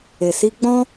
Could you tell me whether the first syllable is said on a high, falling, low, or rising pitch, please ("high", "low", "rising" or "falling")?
low